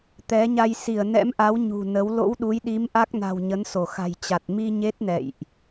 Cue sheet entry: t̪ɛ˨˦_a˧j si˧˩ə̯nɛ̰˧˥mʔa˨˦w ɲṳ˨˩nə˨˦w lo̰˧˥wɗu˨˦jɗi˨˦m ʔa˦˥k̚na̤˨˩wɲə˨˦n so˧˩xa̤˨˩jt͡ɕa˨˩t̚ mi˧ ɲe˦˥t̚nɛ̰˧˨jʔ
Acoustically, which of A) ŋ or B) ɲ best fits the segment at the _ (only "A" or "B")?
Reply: B